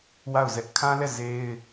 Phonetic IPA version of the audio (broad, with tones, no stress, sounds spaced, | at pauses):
w a˦˨ ʊ̯ z ɛ˦ ʔ kʰ ã˦ l ɛ˦˨ z e˦ ɪ̯